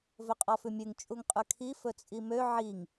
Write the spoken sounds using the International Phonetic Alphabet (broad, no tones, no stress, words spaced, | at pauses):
vɵqʼɔfʉmʲʉŋ t͡ʃʼuŋqʼʉkʰi fɵt͡sʼimø ʕiŋ